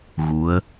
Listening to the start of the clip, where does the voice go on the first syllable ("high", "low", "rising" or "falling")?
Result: rising